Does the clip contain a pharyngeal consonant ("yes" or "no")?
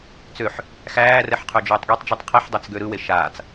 yes